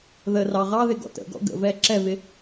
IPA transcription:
ðə rɑʁɑðɪ ɡɔ̰tə̰ɡɔ̰ ɡə̰vɛ ǁɛvɪ

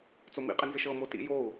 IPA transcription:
t͡somḭqʼɪnzɪʃ ɤmo tḭjou̯

